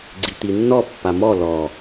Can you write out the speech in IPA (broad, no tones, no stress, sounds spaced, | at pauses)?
ɡ͡ǀ i t̪ i nː ɔ pː a m ɔ l ɔ